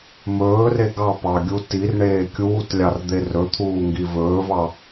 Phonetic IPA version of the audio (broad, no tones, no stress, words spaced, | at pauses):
mɵːre ɡɑpɑɡʲu tirɳeː kʲuːtlʲɑrd̪e rɵt̪ʰuːŋɡi vɵːvɑ